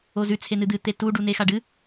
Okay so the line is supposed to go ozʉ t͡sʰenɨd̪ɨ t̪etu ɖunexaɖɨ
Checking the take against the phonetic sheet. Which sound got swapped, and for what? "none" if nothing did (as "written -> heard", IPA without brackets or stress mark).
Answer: none